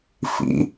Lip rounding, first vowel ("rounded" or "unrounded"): unrounded